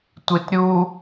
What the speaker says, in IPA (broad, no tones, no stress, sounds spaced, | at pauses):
tʷ i t ɾʲ u